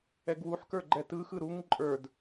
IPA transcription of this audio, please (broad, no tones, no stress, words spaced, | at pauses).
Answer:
ɛɡwuħkə˞ ɡ͡ǃɛtɯxɯ ɾuŋ ǃʼə˞d